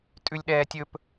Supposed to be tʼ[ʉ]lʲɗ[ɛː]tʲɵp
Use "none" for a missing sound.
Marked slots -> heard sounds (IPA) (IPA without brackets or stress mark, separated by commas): ʉ, ɛː